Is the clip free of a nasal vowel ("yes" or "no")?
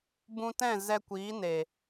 no